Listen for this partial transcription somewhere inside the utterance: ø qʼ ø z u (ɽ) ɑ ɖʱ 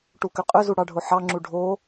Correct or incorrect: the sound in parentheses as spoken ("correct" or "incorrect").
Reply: correct